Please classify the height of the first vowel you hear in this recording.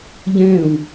mid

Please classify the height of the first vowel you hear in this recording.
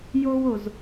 mid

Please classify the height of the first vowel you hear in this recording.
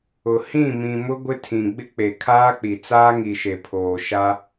high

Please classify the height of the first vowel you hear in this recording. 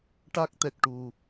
low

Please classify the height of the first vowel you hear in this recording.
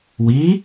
high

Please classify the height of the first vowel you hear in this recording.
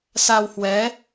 low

